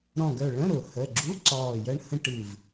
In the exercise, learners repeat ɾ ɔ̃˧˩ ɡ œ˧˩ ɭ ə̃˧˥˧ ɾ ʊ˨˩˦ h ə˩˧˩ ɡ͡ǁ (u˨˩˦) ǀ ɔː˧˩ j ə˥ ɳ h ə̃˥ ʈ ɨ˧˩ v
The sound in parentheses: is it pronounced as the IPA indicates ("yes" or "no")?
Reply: no